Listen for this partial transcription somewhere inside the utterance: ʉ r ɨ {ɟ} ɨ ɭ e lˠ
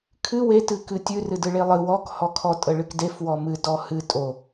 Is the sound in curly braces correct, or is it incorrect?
incorrect